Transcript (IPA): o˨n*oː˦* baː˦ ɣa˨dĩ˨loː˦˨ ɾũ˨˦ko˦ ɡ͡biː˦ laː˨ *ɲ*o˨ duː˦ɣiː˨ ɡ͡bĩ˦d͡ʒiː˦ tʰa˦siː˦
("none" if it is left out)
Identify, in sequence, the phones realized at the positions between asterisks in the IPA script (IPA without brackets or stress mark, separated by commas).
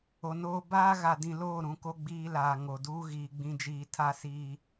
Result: oː˦, ŋ